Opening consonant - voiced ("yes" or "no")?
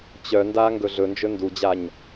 no